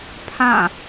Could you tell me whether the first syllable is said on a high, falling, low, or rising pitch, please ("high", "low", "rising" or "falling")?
falling